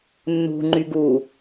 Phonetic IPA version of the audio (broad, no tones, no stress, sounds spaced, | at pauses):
nː ṳ ŋ͡ǃ y ɡ u